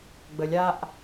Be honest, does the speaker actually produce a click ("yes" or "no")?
no